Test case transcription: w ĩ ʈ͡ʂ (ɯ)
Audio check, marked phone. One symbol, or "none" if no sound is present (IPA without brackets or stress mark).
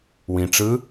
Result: ɯ